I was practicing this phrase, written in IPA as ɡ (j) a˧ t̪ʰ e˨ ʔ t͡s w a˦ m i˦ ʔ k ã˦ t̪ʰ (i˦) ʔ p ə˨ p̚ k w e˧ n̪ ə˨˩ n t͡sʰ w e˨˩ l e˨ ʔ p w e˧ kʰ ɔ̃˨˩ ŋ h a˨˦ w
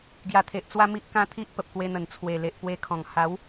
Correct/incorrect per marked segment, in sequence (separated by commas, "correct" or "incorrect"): correct, correct